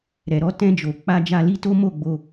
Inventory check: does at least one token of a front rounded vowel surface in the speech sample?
no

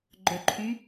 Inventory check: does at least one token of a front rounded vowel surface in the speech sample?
yes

